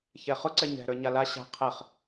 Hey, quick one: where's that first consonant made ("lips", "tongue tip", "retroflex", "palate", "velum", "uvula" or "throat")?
palate